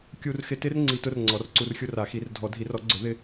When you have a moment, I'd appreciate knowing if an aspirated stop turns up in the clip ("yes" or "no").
no